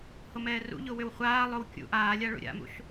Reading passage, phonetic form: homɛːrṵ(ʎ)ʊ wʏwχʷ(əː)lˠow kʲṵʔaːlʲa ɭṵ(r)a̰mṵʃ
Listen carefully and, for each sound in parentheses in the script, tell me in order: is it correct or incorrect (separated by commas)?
correct, incorrect, incorrect